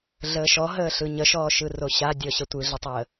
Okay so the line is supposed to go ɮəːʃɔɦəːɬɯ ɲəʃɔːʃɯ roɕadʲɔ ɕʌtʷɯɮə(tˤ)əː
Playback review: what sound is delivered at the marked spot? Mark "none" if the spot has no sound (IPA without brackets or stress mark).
tˤ